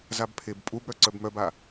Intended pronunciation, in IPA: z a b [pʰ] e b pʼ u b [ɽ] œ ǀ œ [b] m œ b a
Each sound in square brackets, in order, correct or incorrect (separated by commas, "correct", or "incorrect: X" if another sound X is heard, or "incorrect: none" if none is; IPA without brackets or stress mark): correct, correct, correct